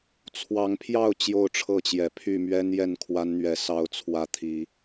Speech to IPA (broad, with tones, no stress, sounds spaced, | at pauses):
t͡sʰ w ɑ˨˦ ŋ pʰ j ɑ˥˨ ʊ̯ t͡ɕ j o˥˨ ʊ̯ ʈ͡ʂʰ ɤ˥˨ t͡ɕ j ɛ˨˩ pʰ y˥˨ m ɥ ɛ˦ n j ɛ˥˨ n kʰ w a˦ n n̪ ɥ ɛ˨˦ s ɑ˦ ʊ̯ t͡sʰ w ä˦ t̪ʰ i˨˦